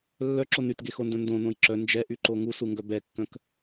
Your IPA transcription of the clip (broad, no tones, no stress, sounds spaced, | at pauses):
lː œ ǁ o n y t ɡ e x o n d œ̃ n d õ n õ j ǁ œ n d͡ʒ ɛ ʔ y ǃ o ŋ u s u ŋ ɡ œ b ɛ kː œ̃ k